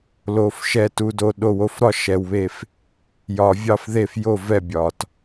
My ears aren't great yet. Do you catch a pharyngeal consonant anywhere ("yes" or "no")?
no